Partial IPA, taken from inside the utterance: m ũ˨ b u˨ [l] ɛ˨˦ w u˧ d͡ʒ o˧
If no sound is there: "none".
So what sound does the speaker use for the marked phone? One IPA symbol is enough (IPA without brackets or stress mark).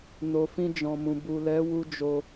l